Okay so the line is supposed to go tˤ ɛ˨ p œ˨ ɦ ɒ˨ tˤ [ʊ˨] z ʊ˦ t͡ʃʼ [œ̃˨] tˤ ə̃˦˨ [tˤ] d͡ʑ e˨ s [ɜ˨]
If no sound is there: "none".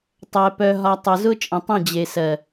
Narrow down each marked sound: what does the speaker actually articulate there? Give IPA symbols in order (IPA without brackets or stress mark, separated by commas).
ʊ˨, ə̃˨, none, ɜ˨